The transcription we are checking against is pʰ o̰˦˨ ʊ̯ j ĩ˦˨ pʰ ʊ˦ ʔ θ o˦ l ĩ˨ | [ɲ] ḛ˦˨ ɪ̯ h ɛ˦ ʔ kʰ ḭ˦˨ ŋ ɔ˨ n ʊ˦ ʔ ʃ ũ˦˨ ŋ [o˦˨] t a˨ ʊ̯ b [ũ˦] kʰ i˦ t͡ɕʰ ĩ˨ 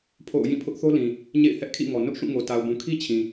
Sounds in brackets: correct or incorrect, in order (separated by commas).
correct, incorrect, incorrect